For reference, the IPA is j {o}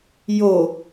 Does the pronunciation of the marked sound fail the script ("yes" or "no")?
no